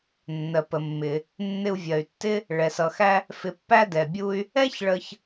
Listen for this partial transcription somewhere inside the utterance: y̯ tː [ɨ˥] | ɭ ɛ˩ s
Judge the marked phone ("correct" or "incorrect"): incorrect